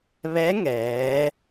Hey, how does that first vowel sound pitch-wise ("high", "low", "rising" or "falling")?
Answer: rising